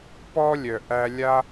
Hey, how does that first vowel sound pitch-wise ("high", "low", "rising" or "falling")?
high